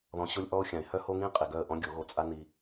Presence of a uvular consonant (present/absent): present